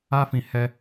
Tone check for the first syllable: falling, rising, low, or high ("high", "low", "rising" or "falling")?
high